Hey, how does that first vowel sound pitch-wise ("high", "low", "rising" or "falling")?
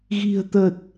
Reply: low